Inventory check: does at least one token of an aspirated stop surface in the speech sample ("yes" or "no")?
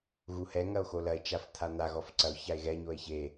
yes